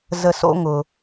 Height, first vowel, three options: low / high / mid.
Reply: mid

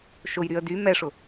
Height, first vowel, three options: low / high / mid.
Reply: high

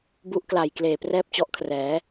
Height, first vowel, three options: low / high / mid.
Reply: high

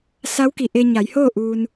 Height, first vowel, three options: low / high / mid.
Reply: low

